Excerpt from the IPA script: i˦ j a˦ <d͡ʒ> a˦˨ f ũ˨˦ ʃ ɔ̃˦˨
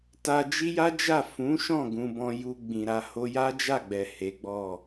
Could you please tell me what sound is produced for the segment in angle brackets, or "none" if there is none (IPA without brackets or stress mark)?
d͡ʒ